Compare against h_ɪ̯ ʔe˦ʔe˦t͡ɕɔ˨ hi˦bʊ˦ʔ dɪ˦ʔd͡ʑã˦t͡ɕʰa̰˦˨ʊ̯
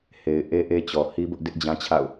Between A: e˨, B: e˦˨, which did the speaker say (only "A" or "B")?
A